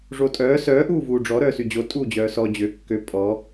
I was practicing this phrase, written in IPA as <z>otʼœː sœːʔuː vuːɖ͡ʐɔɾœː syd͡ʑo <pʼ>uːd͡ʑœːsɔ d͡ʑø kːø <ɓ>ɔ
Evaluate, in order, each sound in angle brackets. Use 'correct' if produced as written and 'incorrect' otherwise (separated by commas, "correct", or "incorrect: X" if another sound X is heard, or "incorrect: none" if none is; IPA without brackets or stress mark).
incorrect: ʐ, incorrect: tʼ, incorrect: pʼ